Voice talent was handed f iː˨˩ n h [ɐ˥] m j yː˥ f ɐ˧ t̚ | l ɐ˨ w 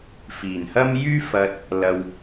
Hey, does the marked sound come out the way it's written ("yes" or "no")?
yes